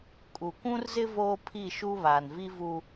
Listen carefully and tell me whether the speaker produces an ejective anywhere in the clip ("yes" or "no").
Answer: yes